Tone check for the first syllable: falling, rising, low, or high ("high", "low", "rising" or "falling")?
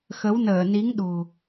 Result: rising